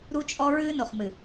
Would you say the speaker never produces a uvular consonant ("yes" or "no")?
no